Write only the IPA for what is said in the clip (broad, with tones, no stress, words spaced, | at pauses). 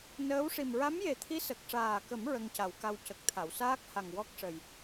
nəː˧˥wʂi˨˩m ɹa˧˥mje˨˩t̪ʰi˧˥ sə˨˩k̚ʂaː˨˩kə˨˩˦m ɹə˧ŋca˨˩˦wka˧w cə˨˩k̚t̪ʰa˨˩˨wsaː˦˥k̚ ha˨˩ŋwɔ˦˥k̚ʂə˨˩j